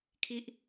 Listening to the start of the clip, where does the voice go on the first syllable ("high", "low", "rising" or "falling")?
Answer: high